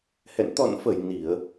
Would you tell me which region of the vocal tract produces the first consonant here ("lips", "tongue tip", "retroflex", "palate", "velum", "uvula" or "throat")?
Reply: throat